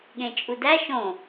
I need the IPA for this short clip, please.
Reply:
ɠ ẽ t͡ʃʼ u d æ ʃ õ

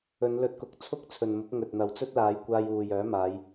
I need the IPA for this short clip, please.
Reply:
ɵ˨˧ n l ɵ˧ t̚ k ʊ˨˥ k̚ t͡sʰ ʊ˥ k̚ t͡sʰ ɵ˨ n m ʊ˨˥ k̚ ŋ ɵ˨ t̚ n̪ ɐ˨ w t͡s ɵ˥ t̚ l aː˨˧ j kʷ aː˧ j uː˨ j œː˨˥ m aː˨˧ j

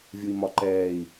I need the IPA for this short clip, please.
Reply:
vʲ u i̯ m ɒ ǃ ɛː i̯

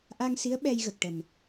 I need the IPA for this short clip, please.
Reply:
ʔ a˧ ŋ s i˧˥ ə̯ ɓ ɛ˧ j ɣ ə˨˩ k̚ ʈ ə˨˩ m

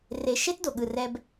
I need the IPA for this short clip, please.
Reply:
r e˧ ʃ e˦ t d o˨ ɠ ɯ˨ r ɛ˧ b

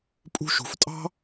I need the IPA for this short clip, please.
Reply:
pʼ ṳ˧ ʃ ṳ˩˧ f tʼ ɑ̤˥

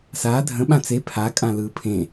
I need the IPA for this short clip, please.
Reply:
s aː dʱ ə̃ ɓ ã t͡s e pʰ a kʼ ã l ɯː pʰ ẽ

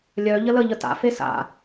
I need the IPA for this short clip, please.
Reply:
lʲ œ ʎ ə l ə ʎ ə t a̰ f e s a̰

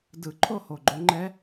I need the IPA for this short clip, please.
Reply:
d ɯ˨˩˦ ǃʰ o˥˨ h o˨˩ ɡ͡ǃ o˨˦ ŋ͡ǃ ɛ˦˥

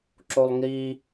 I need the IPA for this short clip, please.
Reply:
ǁ o lˠ ŋ i

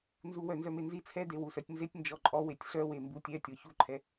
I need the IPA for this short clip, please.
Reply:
n z u w œ n z œ m e n z i t͡sʰ ɛ d e w u s œ tʲ n z e tʲ n d͡ʒ ɔ ǃʼ ɔ w e tʲ ɬ œ w e m b u tʲ ɛ tʲ ɔ ç u ǃʰ ɛ

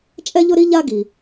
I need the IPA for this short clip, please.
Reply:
t͡ʃʼ ɛ˥ ʎ ʊ˥ ɾ i˥ ʎ a˦ ɡ i˩

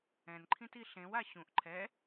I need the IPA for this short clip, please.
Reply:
ɛ̃ n ǃʰ ĩ t i ɬ ẽ w a ɕ ũ ʔ ǃʰ ɛ

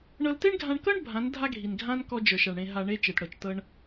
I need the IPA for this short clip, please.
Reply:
ɳ ɤ˧ l t e˦ ɳ ɡʱ ã˧ ɳ k ɤ˦ ɳ bʱ ã˨˦ n dʱ a˦ ɡʱ i˨ n ɡʱ ã˦ n k ɔ˦ d͡ʒ ə˞˨ ʃ a˨ ɳ ɽ ẽ˧ ɦ a˨ ɳ e˧ t͡ʃ e˨ t ɽ ɤ˨ t͡ʃ t ɤ˧ ɳ

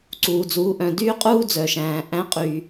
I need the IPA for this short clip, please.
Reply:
ǀ uː˩ d͡z uː˩˧ ʔ œ̃˩ d yː˥ qʼ uː˥ d͡z œ˩ ʃ æ̃ː˩ ʔ æ̃˧˥ qʼ yː˩

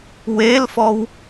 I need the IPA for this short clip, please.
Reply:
w e l f ɔ w

